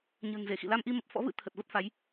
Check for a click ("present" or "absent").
absent